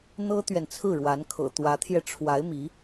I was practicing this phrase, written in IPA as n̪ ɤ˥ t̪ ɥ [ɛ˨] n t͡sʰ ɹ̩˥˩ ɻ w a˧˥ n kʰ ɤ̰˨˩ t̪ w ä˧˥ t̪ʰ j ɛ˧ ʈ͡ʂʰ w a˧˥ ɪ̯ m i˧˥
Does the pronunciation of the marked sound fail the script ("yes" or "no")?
no